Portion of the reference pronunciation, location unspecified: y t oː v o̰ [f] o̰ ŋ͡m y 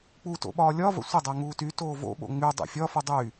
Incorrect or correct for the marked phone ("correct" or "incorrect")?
incorrect